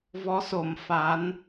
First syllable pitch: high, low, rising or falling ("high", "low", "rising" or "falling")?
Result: rising